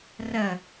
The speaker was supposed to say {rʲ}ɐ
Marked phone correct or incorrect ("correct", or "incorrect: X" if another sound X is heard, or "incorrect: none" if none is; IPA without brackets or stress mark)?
incorrect: r